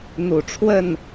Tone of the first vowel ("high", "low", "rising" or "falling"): low